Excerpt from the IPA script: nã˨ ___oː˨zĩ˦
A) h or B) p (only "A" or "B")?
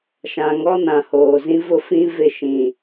A